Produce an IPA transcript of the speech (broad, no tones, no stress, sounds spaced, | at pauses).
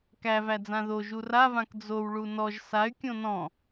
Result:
k æ v æ d͡z ã ð o ʒ u r a v ã k d͡z o w ɭ u n ɔ ʒ s a y̯ kʲ õ n ɔ̃